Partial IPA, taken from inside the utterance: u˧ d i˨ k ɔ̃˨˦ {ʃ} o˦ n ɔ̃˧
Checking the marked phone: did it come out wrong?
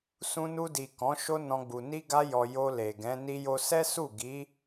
no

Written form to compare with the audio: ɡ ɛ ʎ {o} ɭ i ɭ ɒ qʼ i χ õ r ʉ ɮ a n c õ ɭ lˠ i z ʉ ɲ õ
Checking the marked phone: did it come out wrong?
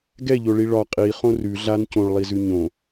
no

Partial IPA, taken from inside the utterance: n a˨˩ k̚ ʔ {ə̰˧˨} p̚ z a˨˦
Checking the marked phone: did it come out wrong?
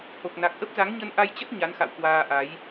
yes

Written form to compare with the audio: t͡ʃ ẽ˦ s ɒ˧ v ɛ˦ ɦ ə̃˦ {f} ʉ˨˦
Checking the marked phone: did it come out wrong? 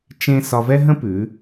yes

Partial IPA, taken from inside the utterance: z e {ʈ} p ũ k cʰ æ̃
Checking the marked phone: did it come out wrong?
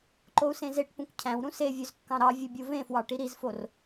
no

